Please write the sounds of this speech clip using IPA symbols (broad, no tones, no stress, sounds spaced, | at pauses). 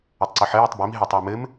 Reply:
ə tˤ ǀ ɘ ħ ə j o tˤ b i m ɦ ɘ tˤ ɘ w m ɘ m